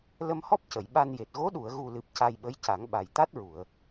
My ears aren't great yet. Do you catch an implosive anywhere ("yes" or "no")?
yes